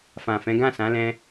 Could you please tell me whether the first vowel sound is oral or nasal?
nasal